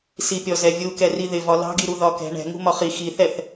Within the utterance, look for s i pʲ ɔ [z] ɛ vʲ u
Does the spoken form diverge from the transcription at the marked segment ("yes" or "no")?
no